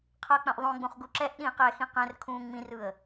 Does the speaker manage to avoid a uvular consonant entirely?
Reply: no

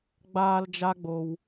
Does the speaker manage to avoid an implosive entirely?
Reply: yes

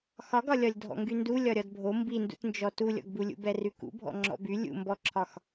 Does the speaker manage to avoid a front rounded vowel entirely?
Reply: no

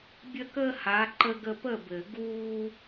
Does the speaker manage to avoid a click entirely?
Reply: no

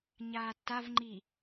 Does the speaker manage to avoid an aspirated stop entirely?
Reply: yes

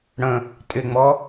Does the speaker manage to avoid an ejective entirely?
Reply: no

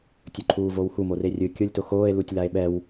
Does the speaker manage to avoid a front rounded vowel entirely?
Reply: yes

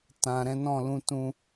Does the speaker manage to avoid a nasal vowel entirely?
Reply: no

